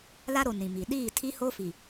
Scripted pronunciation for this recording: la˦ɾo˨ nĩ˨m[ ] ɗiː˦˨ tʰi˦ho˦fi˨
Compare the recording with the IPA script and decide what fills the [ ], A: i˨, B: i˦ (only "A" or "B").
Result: A